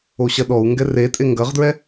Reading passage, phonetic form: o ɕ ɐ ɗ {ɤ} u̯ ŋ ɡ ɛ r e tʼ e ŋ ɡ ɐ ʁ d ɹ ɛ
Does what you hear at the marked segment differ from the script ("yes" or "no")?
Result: yes